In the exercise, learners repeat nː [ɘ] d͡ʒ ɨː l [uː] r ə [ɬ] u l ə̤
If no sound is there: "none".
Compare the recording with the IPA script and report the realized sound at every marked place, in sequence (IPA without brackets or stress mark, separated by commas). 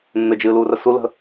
ɘ, uː, s